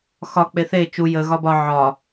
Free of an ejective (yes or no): yes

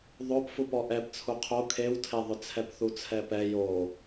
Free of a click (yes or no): yes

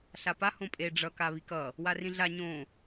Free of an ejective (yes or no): no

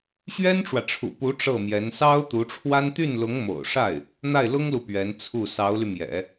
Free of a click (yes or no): yes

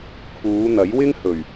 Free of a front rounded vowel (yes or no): yes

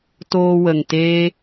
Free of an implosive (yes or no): yes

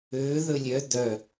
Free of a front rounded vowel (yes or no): no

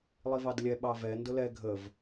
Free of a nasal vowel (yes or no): yes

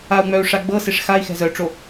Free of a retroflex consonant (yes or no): no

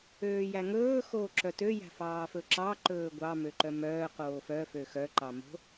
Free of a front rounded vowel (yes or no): no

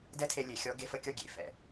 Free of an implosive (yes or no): yes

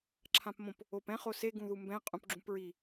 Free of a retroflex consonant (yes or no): yes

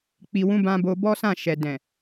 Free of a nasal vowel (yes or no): no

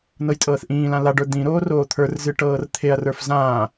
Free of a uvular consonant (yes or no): yes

